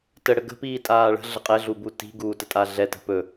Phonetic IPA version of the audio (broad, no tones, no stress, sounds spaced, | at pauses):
t ə ɽ ə ɡ ə̤ p iː tʼ aː ɭ ə̤ ɮ ə qʼ ɛ ɮ u b u t i̤ ɡ uː t ə tʼ a ɮ ɛ t ə̤ p ɵ